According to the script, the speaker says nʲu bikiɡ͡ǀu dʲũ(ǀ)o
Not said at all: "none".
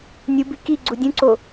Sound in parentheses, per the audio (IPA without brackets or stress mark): ǀ